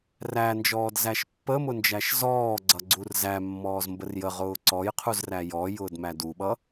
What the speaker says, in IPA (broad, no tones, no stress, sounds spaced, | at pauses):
r æ n d͡ʒ ɔː d z æ ʃ pː ə m ʊ n d͡ʒ æ ʃ z ɔː ɡ͡ǀ ʌ ɡ͡ǀ u r z æ mː ɔː z m b ə r j ə ʁ ʊː ǀ ɔ j qʰ u z r æ j ɔ j ʊː d m æ d u ɓ ʌ